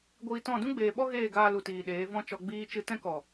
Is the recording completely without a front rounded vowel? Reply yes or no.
yes